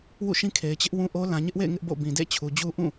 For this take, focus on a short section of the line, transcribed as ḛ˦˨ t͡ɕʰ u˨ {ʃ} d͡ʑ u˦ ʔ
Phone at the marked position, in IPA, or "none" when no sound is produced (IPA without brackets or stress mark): none